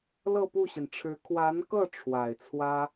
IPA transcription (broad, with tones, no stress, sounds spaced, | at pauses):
l ɤ˥˧ p u˥˩ ɕ i˩ n ʈ͡ʂʰ ɻ̩˧˥ kʰ w a˧˥ n k ɤ˥˩ ʈ͡ʂʰ w a˨˩ ɪ̯ t͡sʰ w ä˥